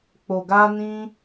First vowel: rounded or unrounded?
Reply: rounded